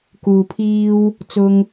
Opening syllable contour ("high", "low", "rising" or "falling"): low